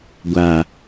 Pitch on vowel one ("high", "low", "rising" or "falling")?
low